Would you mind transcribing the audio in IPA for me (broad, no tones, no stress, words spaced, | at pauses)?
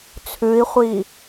t͡sʰʉi̯χʷi